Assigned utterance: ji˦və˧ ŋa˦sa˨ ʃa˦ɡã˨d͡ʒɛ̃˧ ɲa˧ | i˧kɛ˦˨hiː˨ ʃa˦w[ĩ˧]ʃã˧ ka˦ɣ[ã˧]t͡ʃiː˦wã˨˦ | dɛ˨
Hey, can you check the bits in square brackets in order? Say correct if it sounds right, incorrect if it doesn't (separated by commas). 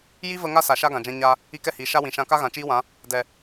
incorrect, incorrect